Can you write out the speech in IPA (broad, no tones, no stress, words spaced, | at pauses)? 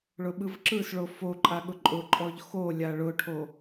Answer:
ɭʊɓɯvǁɯsɭo foǃʼa ɠʊǃʼʊǃʼɔʎ xolʲa ɭʊʈʰo